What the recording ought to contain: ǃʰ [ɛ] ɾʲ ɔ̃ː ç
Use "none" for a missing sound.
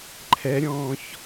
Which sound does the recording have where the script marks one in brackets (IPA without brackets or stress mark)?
ɛ